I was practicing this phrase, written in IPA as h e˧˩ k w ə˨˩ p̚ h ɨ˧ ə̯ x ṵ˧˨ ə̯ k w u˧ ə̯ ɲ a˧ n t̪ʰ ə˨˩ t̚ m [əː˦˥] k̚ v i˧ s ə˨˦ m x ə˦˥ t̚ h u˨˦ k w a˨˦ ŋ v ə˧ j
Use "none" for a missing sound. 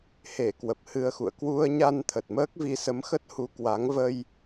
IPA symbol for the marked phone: əː˦˥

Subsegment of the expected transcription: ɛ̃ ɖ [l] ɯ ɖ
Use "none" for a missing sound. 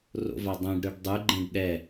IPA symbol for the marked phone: ɾ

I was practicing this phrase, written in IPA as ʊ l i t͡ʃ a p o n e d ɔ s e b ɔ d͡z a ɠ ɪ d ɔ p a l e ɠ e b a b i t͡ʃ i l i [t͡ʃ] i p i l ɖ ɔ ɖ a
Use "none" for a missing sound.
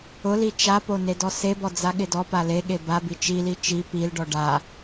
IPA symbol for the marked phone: t͡ʃ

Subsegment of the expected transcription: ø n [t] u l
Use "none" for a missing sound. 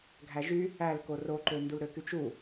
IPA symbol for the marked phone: d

